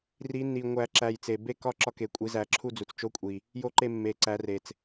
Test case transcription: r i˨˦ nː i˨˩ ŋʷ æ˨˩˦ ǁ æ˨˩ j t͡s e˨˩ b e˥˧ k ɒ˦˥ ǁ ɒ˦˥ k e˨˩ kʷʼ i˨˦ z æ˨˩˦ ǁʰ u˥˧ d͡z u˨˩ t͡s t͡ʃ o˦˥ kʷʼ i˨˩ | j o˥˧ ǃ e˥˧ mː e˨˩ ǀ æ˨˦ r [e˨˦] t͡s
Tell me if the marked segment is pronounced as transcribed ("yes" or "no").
no